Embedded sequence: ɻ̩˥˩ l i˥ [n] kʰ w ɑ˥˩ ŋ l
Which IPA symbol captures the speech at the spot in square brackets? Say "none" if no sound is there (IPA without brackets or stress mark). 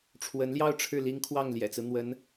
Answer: ŋ